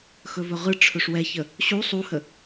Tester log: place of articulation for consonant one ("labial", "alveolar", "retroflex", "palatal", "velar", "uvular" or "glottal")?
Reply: velar